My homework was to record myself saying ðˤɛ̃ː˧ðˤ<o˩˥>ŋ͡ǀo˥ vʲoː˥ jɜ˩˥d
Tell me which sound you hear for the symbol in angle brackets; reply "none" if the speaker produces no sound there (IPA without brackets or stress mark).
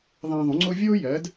õ˩˥